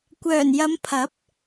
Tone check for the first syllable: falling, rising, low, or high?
low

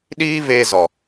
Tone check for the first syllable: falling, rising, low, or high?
high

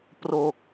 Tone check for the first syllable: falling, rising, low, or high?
low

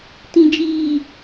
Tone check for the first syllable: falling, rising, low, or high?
low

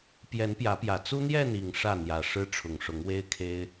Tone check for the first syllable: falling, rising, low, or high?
rising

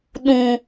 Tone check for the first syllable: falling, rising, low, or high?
low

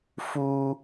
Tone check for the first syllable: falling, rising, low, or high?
high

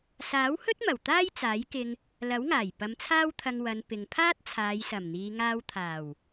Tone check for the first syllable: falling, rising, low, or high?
rising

